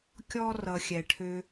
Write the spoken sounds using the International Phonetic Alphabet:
kʲɔ˥rʌ˧xʲɛ˧ ʈʰø˧

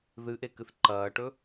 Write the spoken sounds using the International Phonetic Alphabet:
ðɨʔe kɨθǃɐːʈɵ

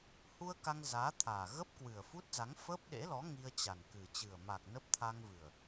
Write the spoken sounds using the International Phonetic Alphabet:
hu˧ə̯ ka˧ŋzaː˨˦t̪ʰaː˨˩ ɣə˦˥p̚kwɨ˨˩ə̯fu˦˥t̚za˨˦ŋ fə˦˥p̚ɗḛ˧˥lɔ˨˦ ŋi˧ə̯t͡ɕa˨˩nkɨ˨˩ t͡ɕɨ˨˩ə̯ma˨˩k̚ nə˦˥p̚ t̪ʰa˧ŋvɨ˨˩ə̯

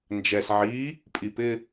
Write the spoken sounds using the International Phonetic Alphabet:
nd͡ʒɛs ʕi | pʼipɪ

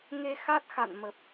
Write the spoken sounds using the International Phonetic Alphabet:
ŋe˧xa˦˥t̚xa̰˧˨nmə˨˩p̚

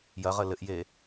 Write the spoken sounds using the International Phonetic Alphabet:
jɐʁə lɘʔje

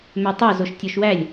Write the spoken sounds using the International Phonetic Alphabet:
møtˤo zoʃtʲoʃwælʲ

